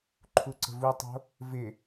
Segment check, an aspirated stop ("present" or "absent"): present